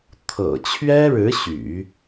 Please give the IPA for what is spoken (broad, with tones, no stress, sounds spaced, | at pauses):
t̪ʰ ɤ̰˨˩ t͡ɕʰ ɥ ɛ˥ ɻ ɻ̩˧˥ ɕ y̰˨˩˦